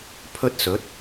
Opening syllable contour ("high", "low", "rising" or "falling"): high